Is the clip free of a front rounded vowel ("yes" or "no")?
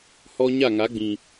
yes